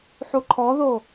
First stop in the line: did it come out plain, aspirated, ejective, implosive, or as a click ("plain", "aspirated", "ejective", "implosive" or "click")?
click